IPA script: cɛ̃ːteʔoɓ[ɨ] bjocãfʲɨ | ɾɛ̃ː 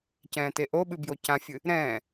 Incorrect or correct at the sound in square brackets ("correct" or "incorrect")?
correct